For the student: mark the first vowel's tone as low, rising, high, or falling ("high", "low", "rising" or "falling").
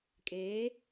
rising